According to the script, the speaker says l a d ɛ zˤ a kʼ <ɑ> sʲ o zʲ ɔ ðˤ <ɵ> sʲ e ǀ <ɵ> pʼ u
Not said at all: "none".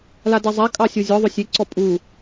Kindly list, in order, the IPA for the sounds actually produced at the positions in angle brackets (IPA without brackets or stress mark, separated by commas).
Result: ɑ, ɵ, ɔ